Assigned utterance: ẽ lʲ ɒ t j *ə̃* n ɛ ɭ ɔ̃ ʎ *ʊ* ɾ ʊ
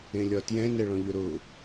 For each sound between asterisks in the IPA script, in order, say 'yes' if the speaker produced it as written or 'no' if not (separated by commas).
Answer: no, yes